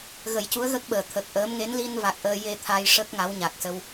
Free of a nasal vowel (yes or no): yes